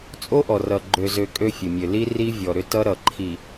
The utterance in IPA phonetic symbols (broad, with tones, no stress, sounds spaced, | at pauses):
t͡sʼ o˦ ʔ ɔ˨ r ʌ˨ ɡ͡ǃ ø˨ z ø˨ kʼ ø˦ fʲ ə˨ mʲ ø˨ l i˦ r i˦ vʲ ɔ˨ ɾ ʏ˦ t ʌ˦ ɾ ʌ˨ ǃʰ i˨